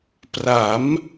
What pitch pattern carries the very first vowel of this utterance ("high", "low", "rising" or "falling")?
rising